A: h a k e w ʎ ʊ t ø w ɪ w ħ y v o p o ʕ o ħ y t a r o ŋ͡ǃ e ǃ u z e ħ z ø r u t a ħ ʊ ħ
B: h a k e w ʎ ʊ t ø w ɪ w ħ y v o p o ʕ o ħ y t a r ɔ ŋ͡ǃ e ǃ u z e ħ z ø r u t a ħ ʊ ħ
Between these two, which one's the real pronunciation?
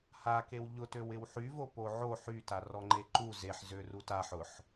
B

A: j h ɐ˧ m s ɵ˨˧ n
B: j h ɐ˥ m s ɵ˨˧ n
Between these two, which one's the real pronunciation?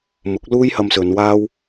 A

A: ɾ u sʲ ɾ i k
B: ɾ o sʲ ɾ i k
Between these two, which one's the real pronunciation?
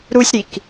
A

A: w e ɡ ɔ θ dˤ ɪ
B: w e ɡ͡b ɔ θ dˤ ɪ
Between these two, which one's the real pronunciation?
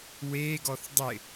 A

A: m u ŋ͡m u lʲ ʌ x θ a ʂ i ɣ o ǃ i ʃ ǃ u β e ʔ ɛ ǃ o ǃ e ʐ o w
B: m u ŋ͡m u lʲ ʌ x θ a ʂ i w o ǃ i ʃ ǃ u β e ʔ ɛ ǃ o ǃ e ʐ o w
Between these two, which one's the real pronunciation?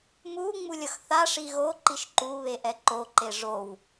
A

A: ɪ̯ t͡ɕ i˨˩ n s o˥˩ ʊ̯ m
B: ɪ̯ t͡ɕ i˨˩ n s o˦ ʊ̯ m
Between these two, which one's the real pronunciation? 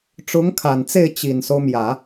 B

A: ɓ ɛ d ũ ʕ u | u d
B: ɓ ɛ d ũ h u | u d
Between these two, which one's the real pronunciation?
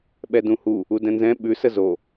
B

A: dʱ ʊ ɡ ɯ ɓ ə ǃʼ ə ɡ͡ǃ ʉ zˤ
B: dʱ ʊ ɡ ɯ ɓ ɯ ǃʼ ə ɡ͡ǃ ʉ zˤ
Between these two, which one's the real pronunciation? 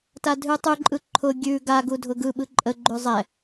B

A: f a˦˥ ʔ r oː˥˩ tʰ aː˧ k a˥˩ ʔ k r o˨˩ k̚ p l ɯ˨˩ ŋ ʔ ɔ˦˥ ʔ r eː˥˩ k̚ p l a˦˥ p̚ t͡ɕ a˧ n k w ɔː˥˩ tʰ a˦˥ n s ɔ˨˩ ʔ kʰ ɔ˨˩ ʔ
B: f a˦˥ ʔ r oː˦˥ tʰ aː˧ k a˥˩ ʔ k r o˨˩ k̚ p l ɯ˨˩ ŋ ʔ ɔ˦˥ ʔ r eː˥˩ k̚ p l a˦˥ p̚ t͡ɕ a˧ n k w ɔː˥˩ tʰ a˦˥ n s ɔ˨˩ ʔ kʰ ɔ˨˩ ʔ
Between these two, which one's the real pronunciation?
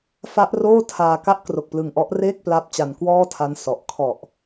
A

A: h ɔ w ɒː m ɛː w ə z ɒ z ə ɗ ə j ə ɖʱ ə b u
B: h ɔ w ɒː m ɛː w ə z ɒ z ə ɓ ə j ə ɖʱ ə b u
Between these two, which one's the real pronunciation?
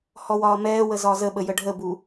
B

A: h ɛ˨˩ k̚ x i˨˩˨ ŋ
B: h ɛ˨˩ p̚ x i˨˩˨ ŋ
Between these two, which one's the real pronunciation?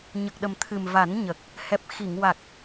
B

